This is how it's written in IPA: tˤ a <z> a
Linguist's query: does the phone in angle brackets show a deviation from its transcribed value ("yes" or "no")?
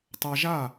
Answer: yes